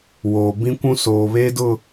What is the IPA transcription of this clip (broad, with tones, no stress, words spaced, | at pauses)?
woː˨ bĩ˦kʷũ˦ soː˨βeː˦dʊ˦˨